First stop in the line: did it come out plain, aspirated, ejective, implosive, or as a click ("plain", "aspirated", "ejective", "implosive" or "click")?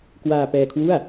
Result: plain